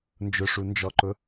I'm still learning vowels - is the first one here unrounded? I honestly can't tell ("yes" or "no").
no